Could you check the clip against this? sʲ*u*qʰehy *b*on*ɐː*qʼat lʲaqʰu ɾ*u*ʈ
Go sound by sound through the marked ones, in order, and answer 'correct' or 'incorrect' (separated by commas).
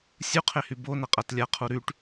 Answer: correct, correct, incorrect, incorrect